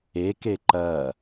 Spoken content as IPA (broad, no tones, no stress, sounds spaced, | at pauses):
e k e ǃ ɐ